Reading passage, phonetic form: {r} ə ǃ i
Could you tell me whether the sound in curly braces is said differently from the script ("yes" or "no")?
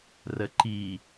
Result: no